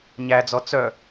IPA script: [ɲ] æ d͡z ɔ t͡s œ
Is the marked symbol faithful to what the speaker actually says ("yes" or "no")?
yes